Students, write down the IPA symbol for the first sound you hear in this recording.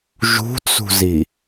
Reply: ʒ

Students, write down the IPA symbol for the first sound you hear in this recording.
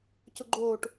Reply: c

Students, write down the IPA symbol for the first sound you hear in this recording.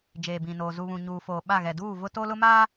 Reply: d͡ʒ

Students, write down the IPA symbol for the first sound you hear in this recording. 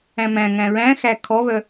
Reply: æ̃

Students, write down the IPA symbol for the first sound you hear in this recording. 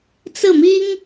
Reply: t͡s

